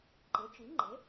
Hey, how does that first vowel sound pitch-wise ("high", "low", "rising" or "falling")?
rising